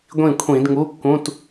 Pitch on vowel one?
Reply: falling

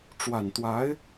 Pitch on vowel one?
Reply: low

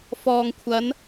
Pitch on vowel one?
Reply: low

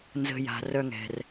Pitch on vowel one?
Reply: low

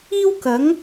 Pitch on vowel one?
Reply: high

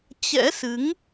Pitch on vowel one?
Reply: rising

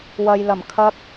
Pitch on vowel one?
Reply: low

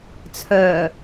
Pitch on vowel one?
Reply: low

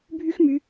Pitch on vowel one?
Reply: high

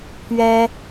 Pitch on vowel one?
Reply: high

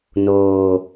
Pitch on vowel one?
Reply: low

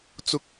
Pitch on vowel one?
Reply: rising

